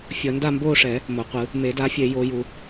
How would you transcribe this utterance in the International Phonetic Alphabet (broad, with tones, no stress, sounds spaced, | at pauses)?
fʲ ʌ˨˩˦ n d a˥˧ m b oː˥˧ ʂ ɛ˨˩˦ | m o˨ qʷ ɯ˨˩˦ | m e˨˩˦ d a˨˥ fʲ e˨˩˦ j o˨˩˦ j u˨